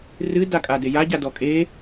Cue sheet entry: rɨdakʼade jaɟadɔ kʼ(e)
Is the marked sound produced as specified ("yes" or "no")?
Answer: yes